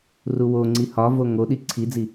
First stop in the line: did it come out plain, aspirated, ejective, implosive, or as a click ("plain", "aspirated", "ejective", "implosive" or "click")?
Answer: click